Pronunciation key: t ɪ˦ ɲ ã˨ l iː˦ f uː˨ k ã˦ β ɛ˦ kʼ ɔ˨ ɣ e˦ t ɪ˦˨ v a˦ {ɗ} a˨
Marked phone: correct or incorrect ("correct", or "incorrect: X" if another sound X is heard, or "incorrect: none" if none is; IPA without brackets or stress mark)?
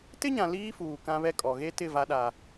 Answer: correct